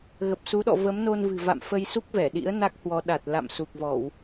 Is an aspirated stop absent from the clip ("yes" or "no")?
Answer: yes